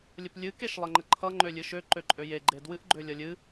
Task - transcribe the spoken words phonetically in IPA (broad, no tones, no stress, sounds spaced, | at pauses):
lʲ ə p lʲ ɨ k e ʃ lˠ ə ŋ͡ǃ ə ǃʰ ʌ ŋ͡ǃ ø lʲ ɨ ʃ ø ǃ ø ǃʼ ø j e ɡ͡ǃ e d w ɨ ʔ ɡ͡ǃ ø lʲ ʌ lʲ ɨ